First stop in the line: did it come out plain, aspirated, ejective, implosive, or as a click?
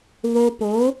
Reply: plain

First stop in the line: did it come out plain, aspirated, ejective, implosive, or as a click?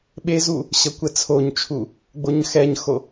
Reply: implosive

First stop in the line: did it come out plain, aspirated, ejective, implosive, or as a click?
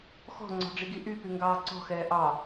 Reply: click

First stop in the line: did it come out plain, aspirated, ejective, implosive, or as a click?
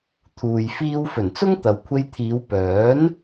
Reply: aspirated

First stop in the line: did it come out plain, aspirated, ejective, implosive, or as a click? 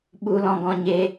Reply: implosive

